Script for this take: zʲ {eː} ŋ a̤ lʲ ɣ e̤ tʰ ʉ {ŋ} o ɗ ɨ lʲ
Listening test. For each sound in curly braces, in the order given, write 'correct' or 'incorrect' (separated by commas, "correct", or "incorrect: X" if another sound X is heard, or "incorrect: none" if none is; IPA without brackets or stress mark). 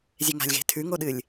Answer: incorrect: e, correct